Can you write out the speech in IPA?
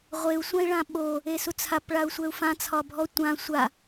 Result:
ʁʷ e u̯ sʷ ã i̯ ɭ ã ɓ o | e s u t͡sʰ a p ɭ a u̯ sʷ ɛ u̯ f ã t͡sʰ ɒ bʱ ɔ tʷ ã sʷ a

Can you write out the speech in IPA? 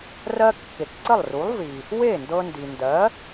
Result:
r ɜ˧ kː e˩ k ǀ ə˥˩ lˠ r u˩˥ lˠ v i˩ | w e˥˩ n d ɤ˧ n d i˩ n d ɜ˩˥

